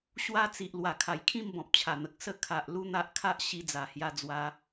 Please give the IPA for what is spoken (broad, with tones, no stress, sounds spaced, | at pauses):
ɕ w a˦ t͡s i˨ ʔ l w a˨˩ kʰ a˨˩ j kʰ ĩ˥˧ m b ɔ̃˨ p̚ t͡ɕʰ a˨˩ n̪ ə˨ k̚ s ə˥˧ kʰ a˨ ʔ l u˦ n̪ a˦ ʔ kʰ a˦ ʔ ɕ i˧ d͡z a˨˩ h j a˧ d͡z w a˧